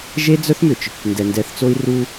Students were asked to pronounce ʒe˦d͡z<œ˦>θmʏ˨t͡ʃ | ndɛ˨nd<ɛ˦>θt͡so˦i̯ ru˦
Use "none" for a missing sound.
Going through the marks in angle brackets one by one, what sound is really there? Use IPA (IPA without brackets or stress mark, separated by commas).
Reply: œ˦, ɛ˨˦